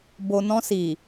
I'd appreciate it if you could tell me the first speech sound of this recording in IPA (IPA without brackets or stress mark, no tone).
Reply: b